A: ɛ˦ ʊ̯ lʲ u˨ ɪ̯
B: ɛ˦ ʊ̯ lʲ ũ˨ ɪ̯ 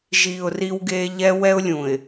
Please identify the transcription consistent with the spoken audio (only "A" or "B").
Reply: B